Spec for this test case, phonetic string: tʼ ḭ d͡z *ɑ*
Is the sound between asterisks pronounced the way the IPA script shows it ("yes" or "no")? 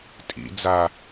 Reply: no